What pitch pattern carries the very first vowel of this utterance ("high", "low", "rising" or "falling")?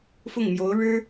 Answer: falling